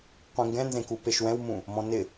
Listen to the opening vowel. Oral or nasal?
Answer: nasal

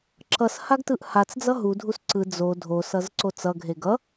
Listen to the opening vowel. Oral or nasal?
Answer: oral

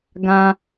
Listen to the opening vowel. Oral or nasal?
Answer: nasal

